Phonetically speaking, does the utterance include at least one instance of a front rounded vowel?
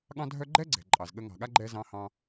yes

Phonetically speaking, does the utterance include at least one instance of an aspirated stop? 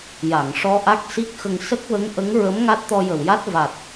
no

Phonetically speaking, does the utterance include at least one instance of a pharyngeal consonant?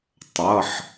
yes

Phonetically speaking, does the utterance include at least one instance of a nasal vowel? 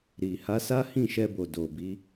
yes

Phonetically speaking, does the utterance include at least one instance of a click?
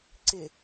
yes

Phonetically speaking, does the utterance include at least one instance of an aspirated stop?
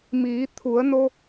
yes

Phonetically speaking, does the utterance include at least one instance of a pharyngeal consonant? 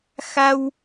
no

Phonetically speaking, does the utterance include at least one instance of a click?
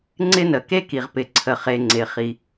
yes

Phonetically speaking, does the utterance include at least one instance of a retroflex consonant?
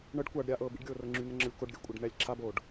yes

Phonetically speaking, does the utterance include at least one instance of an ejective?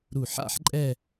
yes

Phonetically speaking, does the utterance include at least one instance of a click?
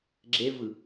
yes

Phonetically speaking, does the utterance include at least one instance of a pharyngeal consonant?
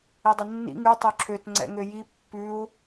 no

